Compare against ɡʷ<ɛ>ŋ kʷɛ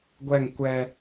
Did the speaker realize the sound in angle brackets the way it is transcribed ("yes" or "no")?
yes